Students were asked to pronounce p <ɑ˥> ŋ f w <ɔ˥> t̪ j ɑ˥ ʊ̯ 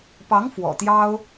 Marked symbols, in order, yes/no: no, no

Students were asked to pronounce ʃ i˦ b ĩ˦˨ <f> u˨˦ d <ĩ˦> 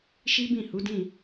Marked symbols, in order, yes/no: no, no

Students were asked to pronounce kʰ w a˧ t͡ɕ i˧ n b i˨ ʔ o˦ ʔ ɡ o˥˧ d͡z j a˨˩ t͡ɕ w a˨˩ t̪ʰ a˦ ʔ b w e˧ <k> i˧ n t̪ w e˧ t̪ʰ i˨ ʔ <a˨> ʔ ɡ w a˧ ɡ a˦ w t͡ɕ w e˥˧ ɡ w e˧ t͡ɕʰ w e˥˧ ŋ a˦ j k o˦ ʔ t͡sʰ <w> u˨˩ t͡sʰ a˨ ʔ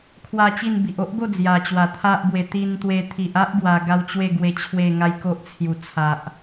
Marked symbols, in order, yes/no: no, no, no

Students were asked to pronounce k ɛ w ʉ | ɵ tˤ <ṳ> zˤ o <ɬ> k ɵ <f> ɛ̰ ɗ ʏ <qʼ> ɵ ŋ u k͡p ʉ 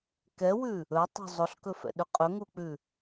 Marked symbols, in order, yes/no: yes, yes, yes, yes

